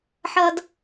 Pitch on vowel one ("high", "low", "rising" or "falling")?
high